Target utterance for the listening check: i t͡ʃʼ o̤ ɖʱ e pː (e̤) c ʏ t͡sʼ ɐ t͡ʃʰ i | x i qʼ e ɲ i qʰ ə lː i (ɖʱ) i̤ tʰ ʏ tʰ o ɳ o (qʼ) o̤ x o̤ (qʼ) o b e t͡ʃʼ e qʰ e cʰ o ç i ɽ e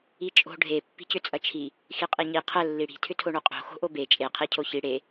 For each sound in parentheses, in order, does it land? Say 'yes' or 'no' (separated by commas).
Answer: no, no, yes, no